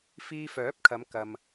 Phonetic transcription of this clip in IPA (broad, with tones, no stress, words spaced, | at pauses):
fiː˧fœː˨˥p̚kʰɐ˨˧m kɐ˨m